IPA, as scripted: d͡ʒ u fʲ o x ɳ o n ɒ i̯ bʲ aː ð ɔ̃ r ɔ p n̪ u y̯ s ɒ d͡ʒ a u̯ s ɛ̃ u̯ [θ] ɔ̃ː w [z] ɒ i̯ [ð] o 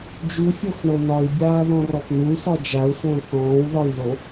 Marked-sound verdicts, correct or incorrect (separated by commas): correct, incorrect, correct